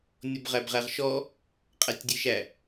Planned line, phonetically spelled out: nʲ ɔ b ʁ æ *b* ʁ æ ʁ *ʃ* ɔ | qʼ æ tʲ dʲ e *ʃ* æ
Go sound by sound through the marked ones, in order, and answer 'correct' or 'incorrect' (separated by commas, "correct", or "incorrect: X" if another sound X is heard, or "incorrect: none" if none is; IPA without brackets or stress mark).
correct, correct, correct